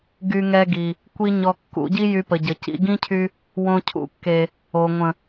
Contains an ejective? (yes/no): no